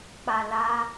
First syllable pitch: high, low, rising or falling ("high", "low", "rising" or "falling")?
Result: low